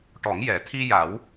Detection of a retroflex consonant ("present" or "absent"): present